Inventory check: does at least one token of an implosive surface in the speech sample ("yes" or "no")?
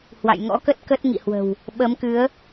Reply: yes